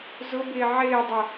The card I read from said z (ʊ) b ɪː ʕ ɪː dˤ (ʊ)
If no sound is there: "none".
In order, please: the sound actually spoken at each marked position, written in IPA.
ʊ, ʊ

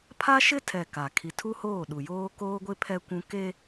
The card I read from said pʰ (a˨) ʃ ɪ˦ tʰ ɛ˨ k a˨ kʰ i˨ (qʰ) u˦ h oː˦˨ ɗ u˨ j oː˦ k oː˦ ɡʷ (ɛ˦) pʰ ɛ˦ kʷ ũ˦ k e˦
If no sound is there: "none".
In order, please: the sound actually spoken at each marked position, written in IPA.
a˦, tʰ, ɪ˦

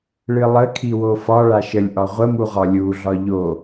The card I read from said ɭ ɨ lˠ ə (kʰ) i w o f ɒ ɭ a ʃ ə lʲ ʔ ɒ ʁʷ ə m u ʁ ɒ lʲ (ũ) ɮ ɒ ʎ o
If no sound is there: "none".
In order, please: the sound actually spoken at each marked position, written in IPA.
kʰ, u

